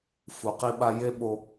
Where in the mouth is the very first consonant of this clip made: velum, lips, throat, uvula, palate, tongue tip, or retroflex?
lips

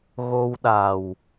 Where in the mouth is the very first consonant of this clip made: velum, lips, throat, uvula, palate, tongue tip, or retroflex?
velum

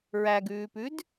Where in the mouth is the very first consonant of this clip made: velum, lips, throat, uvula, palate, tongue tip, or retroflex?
tongue tip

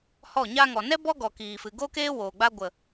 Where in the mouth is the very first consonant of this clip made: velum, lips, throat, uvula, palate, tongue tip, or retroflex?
throat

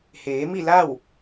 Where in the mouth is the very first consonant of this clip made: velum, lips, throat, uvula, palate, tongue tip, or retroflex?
throat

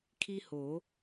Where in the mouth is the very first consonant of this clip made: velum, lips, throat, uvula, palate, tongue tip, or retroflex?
velum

